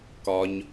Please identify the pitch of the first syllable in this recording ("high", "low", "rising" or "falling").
low